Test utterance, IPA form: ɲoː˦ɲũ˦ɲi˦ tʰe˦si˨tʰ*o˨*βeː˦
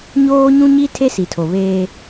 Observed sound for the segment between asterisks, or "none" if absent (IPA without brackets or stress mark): o˨